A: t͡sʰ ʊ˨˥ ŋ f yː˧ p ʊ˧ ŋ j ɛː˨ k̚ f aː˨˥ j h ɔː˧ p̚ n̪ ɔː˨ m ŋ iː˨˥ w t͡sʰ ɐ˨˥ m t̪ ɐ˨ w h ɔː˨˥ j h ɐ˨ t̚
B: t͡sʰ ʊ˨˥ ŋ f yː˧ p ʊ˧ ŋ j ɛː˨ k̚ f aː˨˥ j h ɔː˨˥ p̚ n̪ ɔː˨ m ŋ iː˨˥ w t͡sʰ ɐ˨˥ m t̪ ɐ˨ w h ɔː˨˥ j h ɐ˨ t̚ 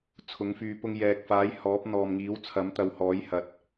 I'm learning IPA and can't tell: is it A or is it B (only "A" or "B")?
B